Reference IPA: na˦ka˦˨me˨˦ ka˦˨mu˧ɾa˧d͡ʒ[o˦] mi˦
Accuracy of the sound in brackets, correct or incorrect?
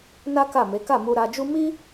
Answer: incorrect